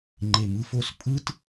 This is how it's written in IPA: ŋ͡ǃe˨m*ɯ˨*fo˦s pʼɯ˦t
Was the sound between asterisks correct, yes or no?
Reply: no